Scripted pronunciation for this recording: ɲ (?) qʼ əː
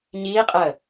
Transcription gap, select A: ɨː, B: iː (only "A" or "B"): B